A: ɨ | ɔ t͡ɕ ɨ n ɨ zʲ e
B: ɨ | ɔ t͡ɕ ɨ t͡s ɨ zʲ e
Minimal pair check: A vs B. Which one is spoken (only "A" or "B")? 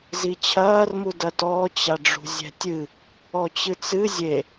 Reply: B